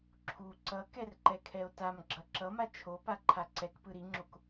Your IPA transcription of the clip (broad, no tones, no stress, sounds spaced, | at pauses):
ǁʰ u ǀ ʌ k ɛ r ǃ ɛ kʰ ɛ o̯ t a m ɡ͡ǁ ʌ ǁ ʌ m a t͡ʃʰ o p a ǃʰ a ǀ ɛ k p ɯ ɾ i ŋ͡ǁ o k